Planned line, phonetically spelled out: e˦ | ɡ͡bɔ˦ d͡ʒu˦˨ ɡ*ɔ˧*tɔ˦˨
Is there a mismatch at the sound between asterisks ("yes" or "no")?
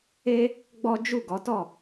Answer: yes